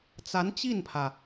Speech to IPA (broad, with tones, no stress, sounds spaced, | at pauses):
t͡s a˧˥ n t͡ɕ i˥˩ n pʰ ä˩